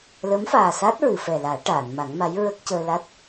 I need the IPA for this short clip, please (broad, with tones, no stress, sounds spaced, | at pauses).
l ə˧˥ m f aː˨˩ s a˦˥ t̚ ɹ ɨ˨˩˨ f ɛ˨˩ l aː˨˩˦ ʈ aː˨˩˨ n m a˨˩˦ ŋ m a˧˥ j ɹ ə˦˥ k̚ c əː˧ l a˦˥ t̚